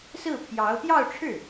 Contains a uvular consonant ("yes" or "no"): no